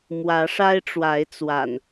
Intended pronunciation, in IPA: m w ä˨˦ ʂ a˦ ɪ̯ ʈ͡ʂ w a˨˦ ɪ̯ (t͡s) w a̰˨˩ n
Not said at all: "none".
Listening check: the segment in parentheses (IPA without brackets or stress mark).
t͡s